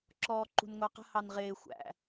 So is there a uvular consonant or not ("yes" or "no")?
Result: yes